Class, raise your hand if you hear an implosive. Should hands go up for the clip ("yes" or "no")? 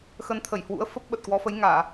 yes